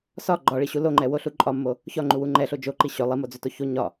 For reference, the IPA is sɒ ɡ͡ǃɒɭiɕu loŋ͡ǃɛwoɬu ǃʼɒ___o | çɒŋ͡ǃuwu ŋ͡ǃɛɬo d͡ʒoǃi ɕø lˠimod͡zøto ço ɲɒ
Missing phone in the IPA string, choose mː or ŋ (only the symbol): mː